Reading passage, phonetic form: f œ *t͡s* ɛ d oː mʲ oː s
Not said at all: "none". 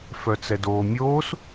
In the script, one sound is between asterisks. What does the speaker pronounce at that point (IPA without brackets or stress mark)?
t͡s